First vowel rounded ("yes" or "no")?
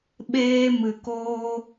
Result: no